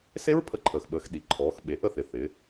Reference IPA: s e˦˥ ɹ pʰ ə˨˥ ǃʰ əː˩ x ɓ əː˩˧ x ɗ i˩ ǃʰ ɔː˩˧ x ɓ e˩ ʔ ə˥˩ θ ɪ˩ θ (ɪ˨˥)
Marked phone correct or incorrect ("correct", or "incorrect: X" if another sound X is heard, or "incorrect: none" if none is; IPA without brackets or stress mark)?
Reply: incorrect: ɪ˩˧